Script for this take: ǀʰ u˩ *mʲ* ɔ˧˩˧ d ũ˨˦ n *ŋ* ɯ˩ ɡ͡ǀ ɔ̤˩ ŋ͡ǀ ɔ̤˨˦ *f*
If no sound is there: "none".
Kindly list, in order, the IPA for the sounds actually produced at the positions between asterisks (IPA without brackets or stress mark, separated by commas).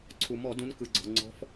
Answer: m, k, f